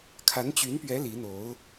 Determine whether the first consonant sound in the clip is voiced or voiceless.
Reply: voiceless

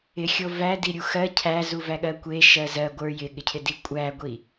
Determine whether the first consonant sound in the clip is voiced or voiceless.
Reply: voiceless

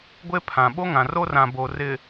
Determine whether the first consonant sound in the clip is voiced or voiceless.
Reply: voiced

